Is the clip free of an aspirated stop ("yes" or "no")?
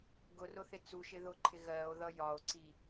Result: no